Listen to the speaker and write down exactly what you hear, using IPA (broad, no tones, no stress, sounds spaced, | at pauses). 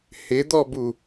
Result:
h ɪ d̪ ɔ b u